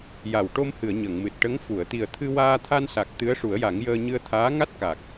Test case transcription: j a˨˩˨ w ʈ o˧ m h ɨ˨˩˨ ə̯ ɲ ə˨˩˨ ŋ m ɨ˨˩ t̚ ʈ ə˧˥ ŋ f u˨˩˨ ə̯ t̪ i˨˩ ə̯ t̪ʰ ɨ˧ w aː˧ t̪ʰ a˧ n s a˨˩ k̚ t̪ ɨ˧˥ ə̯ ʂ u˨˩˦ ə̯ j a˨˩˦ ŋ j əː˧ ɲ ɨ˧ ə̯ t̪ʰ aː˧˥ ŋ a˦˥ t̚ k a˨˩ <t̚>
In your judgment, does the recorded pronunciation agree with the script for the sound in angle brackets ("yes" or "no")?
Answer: no